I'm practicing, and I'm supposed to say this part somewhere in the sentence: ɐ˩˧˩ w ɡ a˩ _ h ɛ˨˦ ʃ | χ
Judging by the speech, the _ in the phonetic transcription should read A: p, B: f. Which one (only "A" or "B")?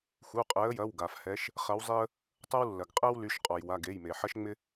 B